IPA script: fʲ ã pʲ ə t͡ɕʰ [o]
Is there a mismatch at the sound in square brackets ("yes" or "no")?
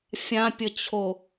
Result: no